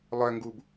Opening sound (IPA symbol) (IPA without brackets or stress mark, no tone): lˠ